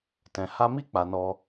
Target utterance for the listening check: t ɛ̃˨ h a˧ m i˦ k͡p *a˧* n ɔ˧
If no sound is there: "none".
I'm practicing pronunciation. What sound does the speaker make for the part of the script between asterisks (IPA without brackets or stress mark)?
a˧